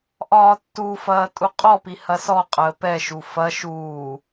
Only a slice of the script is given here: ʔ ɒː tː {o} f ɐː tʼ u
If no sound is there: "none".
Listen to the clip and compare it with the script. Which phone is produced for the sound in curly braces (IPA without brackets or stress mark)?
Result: u